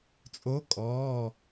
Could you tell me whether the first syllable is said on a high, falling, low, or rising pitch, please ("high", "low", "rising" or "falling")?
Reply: rising